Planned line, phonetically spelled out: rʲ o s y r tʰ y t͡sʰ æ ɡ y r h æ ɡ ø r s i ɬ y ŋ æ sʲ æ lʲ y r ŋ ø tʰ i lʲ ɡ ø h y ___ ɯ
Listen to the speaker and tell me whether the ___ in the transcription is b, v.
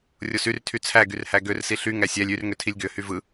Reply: v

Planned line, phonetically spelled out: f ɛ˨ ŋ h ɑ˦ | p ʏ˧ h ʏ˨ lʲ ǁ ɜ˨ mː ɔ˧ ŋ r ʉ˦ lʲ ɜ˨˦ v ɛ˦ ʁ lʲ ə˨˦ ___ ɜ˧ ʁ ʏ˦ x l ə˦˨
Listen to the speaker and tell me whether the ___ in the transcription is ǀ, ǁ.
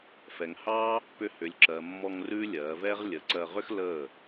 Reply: ǀ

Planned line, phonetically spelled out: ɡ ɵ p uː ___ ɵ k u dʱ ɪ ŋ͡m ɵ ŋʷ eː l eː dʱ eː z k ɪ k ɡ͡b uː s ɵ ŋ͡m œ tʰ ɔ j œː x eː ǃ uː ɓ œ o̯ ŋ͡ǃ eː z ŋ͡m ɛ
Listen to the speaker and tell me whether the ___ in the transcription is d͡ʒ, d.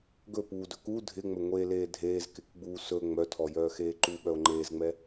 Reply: d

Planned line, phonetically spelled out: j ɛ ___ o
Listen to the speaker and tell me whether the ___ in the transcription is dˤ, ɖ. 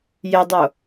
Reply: dˤ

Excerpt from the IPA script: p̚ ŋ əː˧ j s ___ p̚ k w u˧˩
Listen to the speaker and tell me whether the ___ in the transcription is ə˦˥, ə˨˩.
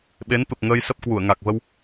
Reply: ə˦˥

